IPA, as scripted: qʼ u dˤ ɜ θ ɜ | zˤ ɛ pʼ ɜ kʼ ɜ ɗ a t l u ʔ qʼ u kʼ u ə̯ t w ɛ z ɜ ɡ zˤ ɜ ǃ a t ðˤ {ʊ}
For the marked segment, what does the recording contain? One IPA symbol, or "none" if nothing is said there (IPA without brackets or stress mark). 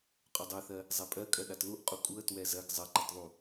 u